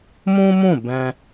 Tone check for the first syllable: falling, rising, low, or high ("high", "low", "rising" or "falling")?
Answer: high